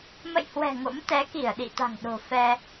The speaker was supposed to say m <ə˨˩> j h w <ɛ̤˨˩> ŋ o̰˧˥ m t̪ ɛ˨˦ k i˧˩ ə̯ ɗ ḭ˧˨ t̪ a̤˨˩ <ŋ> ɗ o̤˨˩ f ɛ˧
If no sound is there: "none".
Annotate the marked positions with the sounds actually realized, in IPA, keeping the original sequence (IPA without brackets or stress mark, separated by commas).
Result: ə̰˧˨, ɛ̤˨˩, ŋ